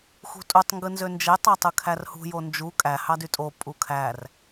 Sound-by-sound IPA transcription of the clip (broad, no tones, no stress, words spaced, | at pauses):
xṳtʼutˤ ŋɡɯnzønd͡ʒe tˤɑtˤɯkʰærhṳ jond͡ʒu kʼæ hɑdytʼo pʼukʰær